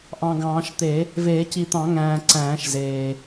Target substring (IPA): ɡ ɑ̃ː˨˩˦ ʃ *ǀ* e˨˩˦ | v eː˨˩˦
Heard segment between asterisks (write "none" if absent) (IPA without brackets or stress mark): t̪